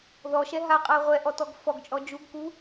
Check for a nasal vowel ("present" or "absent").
absent